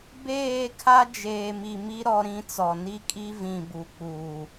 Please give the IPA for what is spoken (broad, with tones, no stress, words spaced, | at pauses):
beː˦˨kʰa˦ d͡ʒeː˨mi˨mi˦ ɾɔ˦ɾĩ˦t͡sɔ˨ ni˦kʼi˦vĩ˨ bu˨k͡puː˨